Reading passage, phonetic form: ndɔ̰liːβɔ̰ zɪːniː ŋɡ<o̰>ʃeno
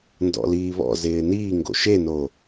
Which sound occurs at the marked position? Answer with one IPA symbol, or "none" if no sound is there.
o̰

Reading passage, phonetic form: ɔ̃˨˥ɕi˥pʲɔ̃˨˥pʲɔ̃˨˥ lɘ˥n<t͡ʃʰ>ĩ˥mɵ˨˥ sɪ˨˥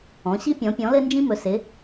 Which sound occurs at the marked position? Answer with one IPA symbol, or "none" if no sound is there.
d͡ʒ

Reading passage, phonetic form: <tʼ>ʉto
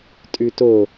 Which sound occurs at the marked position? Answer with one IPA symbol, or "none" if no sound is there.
tʼ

